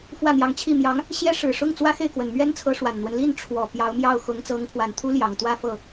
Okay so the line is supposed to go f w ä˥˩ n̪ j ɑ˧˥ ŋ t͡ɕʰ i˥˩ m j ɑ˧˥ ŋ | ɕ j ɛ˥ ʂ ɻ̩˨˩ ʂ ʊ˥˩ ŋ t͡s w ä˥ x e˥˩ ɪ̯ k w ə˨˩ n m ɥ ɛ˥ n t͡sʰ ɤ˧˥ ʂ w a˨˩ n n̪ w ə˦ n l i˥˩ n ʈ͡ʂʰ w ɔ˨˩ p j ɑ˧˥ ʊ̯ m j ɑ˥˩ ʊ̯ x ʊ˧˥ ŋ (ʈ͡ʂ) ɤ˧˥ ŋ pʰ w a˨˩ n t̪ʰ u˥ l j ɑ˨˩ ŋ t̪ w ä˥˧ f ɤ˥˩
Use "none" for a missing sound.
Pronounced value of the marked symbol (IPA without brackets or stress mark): t͡s